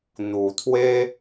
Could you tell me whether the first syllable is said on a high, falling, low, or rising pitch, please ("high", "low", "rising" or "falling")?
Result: low